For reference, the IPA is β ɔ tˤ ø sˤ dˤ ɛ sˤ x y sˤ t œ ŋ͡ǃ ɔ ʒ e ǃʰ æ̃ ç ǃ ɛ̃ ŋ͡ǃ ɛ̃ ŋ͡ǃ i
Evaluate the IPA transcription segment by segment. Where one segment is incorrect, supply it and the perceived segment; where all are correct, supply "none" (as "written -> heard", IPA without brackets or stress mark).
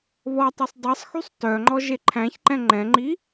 none